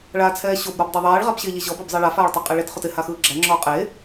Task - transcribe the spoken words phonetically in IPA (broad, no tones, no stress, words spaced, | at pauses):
ɭaːt͡sʰɛːɕob ɾɔbdˤɛðˤɛːɭ ʁabɕeʎeʑɔb ɔbzˤɛɭa faːɭtˤaqʼɛɭet χotɪ haxɯːɡ͡ǁæ ŋ͡ǁɔːqʼeː